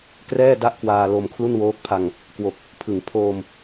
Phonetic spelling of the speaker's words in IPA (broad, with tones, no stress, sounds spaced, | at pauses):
k r ɛː˥˩ d a˥˩ ʔ k w aː˧ l o˧ m kʰ l u˥˩ n w oː˦˥ k̚ pʰ a˧ ŋ | k w o˨˩ k̚ | pʰ ɯ˨˩ ŋ pʰ oː˧ m